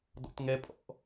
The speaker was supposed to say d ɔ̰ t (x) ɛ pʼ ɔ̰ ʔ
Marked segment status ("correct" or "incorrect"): incorrect